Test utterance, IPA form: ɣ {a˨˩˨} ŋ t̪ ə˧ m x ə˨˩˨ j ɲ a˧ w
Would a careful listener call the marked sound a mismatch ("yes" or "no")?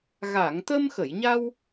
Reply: no